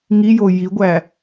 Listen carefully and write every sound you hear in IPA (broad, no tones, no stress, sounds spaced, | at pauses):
ŋ i j o j i ɡʷ æ